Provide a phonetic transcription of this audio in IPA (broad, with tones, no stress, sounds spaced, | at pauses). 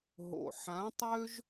ɦ o̰˨ ħ ã˨˦ tˤ ø˦ ʒ